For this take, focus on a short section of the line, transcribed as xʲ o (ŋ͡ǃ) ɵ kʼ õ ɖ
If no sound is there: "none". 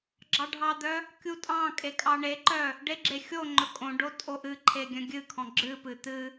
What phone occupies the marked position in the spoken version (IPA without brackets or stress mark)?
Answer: ŋ͡ǃ